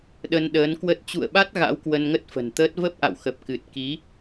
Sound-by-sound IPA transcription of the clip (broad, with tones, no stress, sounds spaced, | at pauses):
ɗ ə˧ n ɗ əː˨˦ n k w ə˦˥ t̚ t͡ɕ ṵ˧˨ ə̯ ɓ a˦˥ t̚ ɣ a̰˧˥ w k w ə˧ n ŋ ə˦˥ t̚ f ə̤˨˩ n t̪ əː˦˥ t̚ v ə˦˥ p̚ ʔ a̰˧˨ w x ə˨˩ p̚ k ɨ˨˩ t̚ k i˨˦